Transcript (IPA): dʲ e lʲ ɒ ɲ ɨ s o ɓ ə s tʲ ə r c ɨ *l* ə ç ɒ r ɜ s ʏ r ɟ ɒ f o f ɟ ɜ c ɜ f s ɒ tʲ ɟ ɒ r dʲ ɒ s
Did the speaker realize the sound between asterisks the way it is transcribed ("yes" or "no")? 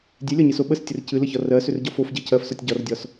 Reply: yes